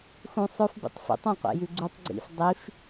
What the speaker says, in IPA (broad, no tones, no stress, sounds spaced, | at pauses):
x ũ sˤ ɵ f b ḭ tˤ f ḭ tˤ ẽ qʷ ḛ j ʉ ɡ͡ǀ u tˤ ɡ͡ǀ ḭ f dˤ i f